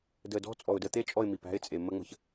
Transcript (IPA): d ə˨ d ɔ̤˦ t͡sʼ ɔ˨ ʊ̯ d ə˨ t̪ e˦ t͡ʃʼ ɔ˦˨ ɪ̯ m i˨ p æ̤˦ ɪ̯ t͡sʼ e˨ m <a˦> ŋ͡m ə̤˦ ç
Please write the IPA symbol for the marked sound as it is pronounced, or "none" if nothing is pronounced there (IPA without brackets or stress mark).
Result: ə˦